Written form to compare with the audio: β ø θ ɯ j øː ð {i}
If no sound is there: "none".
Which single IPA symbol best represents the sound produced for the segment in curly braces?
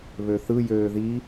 i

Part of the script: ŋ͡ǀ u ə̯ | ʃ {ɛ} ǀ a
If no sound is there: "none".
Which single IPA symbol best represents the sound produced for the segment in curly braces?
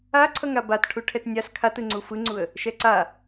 ɛ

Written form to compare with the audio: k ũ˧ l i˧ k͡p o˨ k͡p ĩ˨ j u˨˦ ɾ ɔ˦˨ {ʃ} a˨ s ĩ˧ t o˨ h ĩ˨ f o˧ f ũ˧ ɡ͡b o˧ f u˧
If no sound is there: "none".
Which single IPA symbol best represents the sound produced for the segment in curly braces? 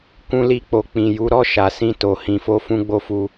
ʃ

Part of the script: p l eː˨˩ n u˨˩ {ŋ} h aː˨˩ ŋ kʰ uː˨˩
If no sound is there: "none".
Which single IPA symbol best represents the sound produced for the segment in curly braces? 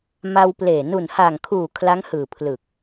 n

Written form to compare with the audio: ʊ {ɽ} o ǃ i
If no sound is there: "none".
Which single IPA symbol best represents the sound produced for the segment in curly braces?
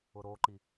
ɾ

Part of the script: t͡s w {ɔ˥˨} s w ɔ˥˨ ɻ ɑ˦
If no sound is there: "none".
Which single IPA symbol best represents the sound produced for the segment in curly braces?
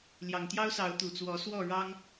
ɔ˨˦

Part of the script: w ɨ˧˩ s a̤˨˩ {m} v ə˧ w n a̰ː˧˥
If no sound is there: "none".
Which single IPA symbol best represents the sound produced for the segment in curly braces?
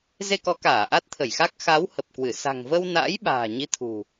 ŋ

